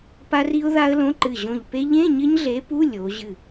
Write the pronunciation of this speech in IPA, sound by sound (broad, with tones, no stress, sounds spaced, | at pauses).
p a˦˥ r i˦˥ ʊ̯ ð a˦˥ ə̯ l õ˧˥˧ ǃ ɨ˧˩ ʑ õ˧˩ ʎ p e˦˥ ʎ ẽ˧˥˧ ɲ ɘ˦˥ ɲ ɮ e˨˥ p u˧˥˧ lʲ o˩˧ ʑ ɨ˧˩